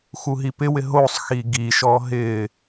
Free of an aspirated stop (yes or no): yes